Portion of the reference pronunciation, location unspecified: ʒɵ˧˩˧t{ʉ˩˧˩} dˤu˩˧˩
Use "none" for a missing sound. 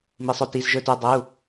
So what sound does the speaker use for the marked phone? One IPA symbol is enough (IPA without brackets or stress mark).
ʉ˩˧˩